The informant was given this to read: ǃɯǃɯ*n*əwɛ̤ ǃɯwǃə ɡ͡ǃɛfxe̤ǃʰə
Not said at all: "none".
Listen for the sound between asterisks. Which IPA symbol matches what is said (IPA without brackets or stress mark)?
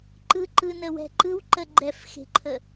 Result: n